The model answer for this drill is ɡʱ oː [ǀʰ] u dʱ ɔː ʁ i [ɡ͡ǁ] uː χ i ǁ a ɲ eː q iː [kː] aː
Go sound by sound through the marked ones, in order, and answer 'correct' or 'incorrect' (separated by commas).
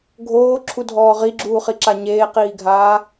incorrect, correct, incorrect